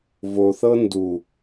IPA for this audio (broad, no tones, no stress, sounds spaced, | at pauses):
v o θ ɤ n d u